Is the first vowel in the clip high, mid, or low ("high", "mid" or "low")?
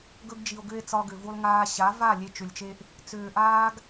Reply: mid